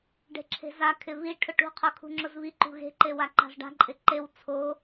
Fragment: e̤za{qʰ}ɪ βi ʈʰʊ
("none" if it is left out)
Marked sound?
kʰ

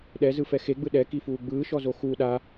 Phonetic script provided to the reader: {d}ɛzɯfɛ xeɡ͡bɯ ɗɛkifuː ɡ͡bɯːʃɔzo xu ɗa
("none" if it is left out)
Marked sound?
ɗ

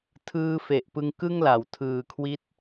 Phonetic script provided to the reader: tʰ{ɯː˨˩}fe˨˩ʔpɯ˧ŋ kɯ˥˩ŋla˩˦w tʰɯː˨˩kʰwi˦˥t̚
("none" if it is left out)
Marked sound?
ɯː˧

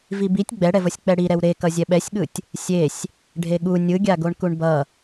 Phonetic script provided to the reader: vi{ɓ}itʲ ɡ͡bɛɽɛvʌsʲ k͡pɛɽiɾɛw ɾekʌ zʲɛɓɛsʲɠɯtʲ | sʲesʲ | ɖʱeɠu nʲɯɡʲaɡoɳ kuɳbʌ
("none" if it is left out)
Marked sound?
b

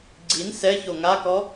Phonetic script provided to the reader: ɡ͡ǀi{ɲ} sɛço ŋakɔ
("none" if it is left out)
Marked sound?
n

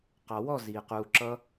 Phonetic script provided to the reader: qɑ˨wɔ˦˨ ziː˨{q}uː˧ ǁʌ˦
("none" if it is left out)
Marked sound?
q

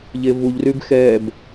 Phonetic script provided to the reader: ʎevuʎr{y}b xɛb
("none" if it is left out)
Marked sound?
y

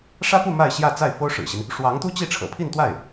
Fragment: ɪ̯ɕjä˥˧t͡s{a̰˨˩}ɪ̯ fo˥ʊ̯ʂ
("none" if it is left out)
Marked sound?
a˥˩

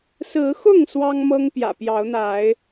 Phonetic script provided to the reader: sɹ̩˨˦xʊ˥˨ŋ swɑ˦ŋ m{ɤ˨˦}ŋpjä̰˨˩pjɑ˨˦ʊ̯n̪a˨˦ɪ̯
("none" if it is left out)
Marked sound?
ɤ˦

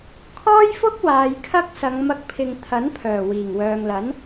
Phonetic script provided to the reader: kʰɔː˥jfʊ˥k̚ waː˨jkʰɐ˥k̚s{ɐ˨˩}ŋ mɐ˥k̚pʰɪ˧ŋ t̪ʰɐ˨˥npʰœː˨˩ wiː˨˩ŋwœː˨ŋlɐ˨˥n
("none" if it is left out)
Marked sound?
ɐ˨˧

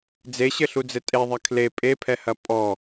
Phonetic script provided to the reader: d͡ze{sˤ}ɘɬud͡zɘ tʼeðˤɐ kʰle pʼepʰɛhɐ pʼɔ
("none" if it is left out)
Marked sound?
ɕ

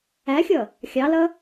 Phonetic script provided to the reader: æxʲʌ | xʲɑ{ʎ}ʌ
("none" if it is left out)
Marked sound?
l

